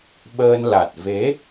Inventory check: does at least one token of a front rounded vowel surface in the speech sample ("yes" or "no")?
no